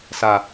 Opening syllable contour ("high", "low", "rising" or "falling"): low